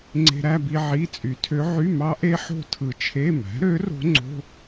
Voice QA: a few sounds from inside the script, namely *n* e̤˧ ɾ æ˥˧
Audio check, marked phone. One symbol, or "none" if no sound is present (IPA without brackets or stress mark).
ŋ͡ǀ